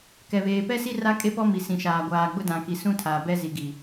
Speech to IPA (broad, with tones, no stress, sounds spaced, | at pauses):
k ɛ˨ β eː˨ p ɛ˦ s i˦ r a˦ kʼ e˦ p ɔ˦ m i˨ s ĩ˨ ʃ aː˨ ɡʷ aː˨ ɡ͡b ʊ˦ d ã˨ k i˨ s ũ˦ tʰ a˨ b ɛ˦ z i˨ ɡ i˨